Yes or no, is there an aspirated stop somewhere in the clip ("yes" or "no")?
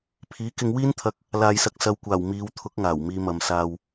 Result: yes